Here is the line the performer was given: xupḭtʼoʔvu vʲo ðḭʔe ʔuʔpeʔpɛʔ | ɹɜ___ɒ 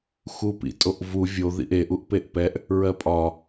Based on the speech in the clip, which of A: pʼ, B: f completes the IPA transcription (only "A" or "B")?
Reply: A